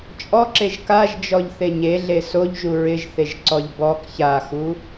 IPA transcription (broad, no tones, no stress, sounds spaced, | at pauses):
t͡ʃʼ ɔ ǁ e ʒ k a ʒ d͡ʒ ɔ ʎ θ e ɲ e ɮ e s o ʎ ʒ u ɹ ɪ ʒ θ e ʒ ǀ ɔ ʎ b ɔ k ç a x u